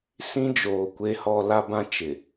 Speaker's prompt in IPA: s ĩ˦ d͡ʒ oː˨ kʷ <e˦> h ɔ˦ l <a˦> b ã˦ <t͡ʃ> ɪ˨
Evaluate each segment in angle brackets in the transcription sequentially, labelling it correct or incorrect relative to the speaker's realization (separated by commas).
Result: correct, correct, correct